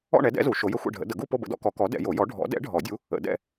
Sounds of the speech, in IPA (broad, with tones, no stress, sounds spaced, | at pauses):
ɔ̰˥˧ ɳ ɛ˨˥ d ɛ̰˨˥ z u˨˩˦ ʃ o˨˥ j ə˥˧ xʷ ɛ̰˥˧ ɖʱ ə̰˨˥ d ə˨˩˦ ɡ u˥˧ p o˥˧ b ə̰˨˥ d ɔ̰˨˥ k ɔ˨˥ k ɔ˨˥ d ɛ̰˨˩˦ j o˨˩˦ j ɔ˨˥ ɖʱ ɔ̰˨˥ d ɛ̰˨˥ ɖʱ ɔ˨˩˦ dʲ u˨˥ | ə̰˨˩˦ d ɛ̰˥˧